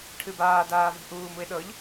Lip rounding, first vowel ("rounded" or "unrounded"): unrounded